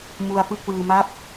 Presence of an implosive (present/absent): absent